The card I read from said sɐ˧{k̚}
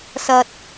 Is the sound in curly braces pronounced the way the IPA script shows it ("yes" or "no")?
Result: no